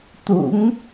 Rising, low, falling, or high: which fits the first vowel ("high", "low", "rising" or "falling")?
rising